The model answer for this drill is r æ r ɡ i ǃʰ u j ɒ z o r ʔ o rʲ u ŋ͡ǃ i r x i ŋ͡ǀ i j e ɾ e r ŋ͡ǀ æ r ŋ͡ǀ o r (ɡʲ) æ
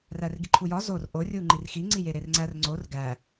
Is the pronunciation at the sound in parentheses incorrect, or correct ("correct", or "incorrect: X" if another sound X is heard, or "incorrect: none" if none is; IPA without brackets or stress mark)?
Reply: incorrect: ɡ